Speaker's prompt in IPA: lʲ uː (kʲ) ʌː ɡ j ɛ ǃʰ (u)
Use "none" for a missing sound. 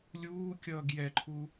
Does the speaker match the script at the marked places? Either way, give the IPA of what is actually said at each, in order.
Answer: kʲ, u

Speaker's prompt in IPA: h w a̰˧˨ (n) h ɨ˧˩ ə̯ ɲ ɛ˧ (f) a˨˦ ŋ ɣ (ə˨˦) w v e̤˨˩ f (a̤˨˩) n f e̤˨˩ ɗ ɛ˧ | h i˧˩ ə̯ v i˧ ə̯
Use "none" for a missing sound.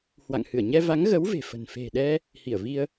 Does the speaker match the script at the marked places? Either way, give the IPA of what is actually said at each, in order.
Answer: ŋ, v, ə˨˦, ə̤˨˩

